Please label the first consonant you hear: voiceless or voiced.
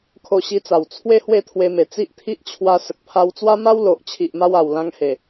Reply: voiceless